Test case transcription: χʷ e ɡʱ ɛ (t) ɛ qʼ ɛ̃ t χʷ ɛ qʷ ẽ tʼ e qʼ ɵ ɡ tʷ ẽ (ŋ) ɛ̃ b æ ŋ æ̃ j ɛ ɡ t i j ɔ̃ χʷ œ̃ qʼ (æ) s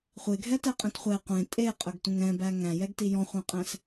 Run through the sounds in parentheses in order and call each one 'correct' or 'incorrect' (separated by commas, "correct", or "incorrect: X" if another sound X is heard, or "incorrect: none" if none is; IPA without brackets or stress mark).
correct, correct, incorrect: æ̃